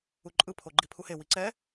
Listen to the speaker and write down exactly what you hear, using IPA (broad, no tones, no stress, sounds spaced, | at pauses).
u ǃʼ ɯ pʰ o ɡ͡ǃ i pʰ u h e w i ǀ ɛ